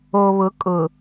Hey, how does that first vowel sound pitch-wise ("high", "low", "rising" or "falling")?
low